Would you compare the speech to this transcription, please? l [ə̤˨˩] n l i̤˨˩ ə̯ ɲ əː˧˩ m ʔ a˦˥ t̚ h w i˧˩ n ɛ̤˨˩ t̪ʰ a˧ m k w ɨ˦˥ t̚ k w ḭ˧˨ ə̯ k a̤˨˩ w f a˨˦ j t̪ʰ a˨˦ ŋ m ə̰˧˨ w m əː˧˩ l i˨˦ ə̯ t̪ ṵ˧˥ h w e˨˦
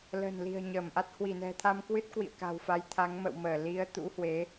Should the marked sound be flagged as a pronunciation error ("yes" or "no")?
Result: no